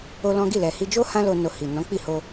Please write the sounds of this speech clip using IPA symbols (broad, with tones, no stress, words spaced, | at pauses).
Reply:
o˦lɔ̃˦ ɡi˦˨lɛ˨ hi˧d͡ʒo˦ hã˦lo˧ no˨ hi˨ nɔ̃˨˦k͡pi˦˨ho˧